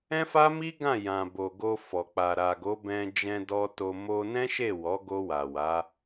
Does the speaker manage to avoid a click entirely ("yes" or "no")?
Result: yes